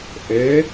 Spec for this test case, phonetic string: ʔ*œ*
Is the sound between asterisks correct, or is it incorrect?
incorrect